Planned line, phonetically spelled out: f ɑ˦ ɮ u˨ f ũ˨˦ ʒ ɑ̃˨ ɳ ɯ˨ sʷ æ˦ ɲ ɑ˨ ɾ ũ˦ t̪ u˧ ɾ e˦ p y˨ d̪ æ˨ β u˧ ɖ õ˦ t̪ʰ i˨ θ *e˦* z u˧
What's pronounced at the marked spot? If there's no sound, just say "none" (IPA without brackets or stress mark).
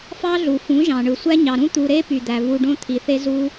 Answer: e˦